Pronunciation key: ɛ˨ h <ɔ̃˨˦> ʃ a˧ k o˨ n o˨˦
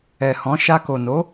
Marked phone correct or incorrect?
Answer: correct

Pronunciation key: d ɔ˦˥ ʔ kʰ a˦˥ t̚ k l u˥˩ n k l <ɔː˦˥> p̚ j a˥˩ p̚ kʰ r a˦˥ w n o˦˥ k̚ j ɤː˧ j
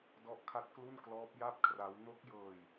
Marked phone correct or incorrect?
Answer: correct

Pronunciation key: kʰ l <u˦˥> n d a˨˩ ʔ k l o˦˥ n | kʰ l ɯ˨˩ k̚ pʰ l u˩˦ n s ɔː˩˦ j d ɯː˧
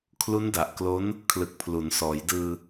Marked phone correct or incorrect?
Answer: correct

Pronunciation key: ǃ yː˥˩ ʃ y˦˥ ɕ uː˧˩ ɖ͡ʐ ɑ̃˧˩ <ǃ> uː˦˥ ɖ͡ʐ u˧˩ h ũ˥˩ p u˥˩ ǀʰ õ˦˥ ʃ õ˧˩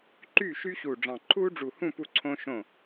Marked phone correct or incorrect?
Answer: incorrect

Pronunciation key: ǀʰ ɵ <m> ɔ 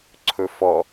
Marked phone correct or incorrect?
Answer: incorrect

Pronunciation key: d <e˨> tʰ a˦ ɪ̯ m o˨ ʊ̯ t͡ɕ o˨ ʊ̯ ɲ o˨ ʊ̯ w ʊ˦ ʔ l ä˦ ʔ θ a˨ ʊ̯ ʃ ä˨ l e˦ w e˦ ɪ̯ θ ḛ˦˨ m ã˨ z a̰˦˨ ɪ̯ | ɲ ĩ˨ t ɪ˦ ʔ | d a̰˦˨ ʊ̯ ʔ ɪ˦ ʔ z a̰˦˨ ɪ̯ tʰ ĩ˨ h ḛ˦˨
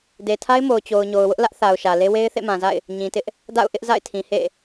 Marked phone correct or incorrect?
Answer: correct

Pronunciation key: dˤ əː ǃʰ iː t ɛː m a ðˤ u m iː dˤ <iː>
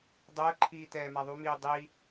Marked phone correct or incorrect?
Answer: incorrect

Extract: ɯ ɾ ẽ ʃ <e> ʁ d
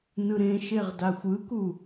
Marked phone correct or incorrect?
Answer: correct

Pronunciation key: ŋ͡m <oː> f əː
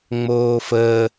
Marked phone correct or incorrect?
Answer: correct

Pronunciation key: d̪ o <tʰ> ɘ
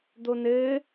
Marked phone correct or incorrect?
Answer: incorrect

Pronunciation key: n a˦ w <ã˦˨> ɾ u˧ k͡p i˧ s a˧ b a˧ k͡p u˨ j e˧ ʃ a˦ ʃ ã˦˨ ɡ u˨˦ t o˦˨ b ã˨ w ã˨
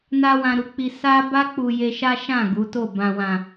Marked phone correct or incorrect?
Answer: incorrect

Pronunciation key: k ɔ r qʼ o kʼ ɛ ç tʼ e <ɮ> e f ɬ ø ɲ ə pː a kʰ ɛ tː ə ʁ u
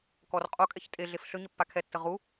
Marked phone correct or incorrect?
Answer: correct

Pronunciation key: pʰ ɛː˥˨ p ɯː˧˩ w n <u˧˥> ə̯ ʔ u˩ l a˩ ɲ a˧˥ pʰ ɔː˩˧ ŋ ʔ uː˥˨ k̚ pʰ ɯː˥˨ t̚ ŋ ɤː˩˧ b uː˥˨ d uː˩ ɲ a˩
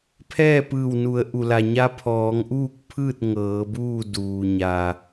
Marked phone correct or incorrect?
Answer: incorrect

